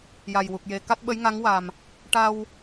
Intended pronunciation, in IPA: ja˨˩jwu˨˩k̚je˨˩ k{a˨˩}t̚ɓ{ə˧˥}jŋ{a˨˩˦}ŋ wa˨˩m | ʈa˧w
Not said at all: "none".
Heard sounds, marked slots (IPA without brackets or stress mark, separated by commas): a˦˥, ə˧˥, a˧˥